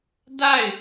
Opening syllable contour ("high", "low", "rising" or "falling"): falling